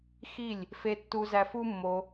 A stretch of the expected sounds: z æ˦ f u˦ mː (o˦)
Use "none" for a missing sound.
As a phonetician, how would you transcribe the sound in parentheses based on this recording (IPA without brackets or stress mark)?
o˧